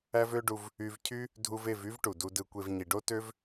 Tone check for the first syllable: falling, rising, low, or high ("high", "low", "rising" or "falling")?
high